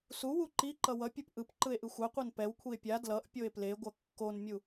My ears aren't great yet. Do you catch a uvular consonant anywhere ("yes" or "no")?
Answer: yes